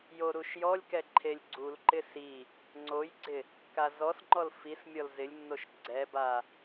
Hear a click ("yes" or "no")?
yes